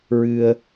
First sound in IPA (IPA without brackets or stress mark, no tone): ɹ